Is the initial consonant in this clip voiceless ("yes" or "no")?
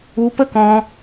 yes